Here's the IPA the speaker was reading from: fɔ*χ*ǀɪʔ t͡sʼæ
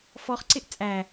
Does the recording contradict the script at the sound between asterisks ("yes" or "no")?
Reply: no